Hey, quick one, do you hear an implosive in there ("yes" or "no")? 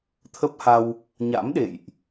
yes